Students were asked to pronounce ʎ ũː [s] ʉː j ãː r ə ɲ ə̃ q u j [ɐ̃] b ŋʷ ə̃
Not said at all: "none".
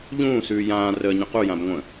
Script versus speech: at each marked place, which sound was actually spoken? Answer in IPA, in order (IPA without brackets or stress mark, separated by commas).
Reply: s, ã